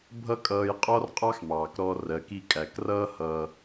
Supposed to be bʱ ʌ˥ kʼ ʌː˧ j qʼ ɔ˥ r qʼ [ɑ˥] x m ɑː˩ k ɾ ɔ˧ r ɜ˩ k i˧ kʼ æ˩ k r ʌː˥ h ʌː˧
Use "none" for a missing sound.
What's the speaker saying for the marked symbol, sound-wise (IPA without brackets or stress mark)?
ɑ˥